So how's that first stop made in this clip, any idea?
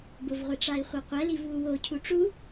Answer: plain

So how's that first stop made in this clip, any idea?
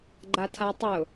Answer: click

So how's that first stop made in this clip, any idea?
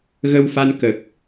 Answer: plain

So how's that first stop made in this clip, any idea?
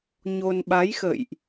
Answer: implosive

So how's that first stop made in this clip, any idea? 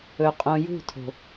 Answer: ejective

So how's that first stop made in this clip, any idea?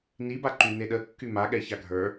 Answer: plain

